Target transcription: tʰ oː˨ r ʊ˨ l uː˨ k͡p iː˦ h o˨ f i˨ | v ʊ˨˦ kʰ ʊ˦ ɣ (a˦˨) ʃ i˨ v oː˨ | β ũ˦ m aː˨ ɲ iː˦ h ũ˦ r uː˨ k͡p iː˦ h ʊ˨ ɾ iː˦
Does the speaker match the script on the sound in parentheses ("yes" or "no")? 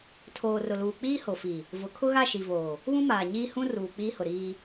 yes